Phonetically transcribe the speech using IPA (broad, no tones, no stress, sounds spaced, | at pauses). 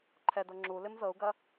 ǃʰ ɛ d ɤ ŋ͡ǁ u l ɪ m z ɤ u̯ ɡ ɐ